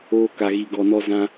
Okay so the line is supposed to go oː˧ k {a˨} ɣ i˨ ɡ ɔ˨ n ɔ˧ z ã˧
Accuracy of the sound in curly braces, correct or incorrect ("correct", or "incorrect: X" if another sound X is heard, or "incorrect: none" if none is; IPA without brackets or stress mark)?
correct